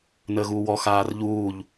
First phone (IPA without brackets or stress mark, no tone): n